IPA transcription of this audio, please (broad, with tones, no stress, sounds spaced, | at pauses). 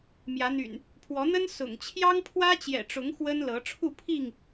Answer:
m j ä˨˦ n̪ y̰˨˩ n | pʰ w ɔ˨˦ n̪ ə˦ n s ʊ̰˨˩ ŋ t͡ɕʰ j ɑ˦ ŋ pʰ w ä˦ t͡ɕ j ɛ̰˨˩ ʈ͡ʂ ʊ˨˦ ŋ x w ə˦ n l ɤ˨˦ ʈ͡ʂʰ u˥˨ pʰ i˥˨ ŋ